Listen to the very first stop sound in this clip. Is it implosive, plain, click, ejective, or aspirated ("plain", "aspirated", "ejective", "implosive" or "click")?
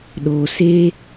implosive